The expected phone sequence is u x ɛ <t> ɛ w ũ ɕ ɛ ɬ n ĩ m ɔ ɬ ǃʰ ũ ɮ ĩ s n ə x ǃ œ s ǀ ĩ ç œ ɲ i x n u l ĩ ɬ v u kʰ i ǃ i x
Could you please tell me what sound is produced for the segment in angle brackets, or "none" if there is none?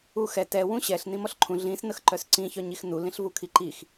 t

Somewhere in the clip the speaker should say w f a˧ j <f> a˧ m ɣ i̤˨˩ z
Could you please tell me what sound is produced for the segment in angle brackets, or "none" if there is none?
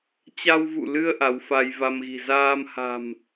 v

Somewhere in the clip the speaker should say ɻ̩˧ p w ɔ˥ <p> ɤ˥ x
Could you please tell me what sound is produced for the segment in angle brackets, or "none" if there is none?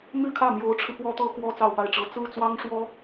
t̪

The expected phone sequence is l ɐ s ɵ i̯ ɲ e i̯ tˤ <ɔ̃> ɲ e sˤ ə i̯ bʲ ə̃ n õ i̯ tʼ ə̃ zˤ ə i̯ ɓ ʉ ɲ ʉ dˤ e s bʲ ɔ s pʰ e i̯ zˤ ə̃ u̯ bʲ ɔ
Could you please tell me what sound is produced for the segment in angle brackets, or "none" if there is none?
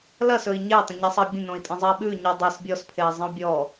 ə̃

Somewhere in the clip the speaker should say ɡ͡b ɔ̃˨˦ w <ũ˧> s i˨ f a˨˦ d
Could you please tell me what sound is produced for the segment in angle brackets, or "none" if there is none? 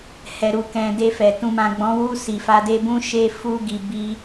u˧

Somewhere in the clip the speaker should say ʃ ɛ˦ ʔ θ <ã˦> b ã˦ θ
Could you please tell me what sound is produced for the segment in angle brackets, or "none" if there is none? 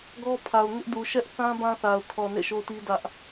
ã˦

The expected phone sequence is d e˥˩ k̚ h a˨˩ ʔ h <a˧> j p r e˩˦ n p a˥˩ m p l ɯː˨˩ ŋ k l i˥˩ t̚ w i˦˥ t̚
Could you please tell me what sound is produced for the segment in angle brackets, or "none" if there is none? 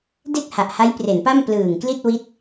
a˦˥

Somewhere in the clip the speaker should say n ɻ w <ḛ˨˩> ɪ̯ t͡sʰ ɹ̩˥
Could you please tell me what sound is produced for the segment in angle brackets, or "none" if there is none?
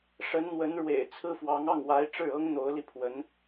ḛ˨˩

